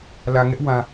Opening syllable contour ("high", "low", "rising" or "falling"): low